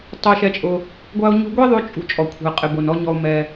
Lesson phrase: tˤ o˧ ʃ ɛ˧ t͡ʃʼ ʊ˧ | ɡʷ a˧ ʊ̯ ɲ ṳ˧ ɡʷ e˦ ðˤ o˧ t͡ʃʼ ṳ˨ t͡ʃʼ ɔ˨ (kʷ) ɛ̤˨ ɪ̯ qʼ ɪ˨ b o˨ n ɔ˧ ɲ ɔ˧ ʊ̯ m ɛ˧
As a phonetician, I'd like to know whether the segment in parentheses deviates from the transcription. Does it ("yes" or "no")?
yes